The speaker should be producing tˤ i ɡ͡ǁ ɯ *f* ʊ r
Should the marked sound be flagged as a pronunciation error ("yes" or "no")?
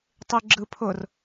yes